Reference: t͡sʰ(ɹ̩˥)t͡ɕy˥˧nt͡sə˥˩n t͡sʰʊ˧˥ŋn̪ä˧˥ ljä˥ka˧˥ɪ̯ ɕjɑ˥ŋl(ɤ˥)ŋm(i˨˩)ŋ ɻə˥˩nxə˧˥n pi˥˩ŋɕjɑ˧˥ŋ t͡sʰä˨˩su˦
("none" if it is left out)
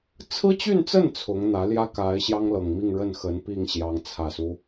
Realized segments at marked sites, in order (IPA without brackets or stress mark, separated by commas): ɹ̩˥, ɤ˨˩, i˥˧